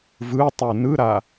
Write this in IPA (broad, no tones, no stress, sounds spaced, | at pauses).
v ɯ tˤ u n ɯ ɾ a